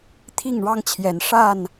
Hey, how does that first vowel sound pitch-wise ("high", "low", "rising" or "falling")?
falling